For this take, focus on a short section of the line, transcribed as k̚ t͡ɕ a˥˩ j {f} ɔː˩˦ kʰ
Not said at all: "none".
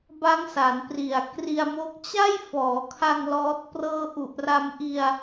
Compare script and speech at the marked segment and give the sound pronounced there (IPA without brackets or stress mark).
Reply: f